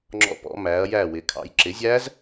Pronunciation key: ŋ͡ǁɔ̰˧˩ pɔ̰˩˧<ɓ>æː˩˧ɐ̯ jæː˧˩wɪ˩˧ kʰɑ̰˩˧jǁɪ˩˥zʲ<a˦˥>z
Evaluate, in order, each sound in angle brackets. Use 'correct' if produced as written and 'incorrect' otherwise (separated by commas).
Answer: incorrect, incorrect